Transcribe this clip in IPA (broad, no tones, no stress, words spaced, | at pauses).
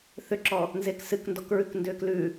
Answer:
θʏǁɔ | nzeksɨkndɔkɹʉk ndʏːklʉ